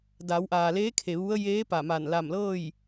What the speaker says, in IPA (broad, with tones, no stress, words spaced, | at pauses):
da˩˧wʔaː˩leː˧˥ kʰe˩ʋu˧˥ə̯ jeː˧˥ pa˧˩ma˧˩n la˧˩mlɤː˥˨j